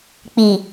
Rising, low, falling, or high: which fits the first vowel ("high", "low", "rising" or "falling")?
low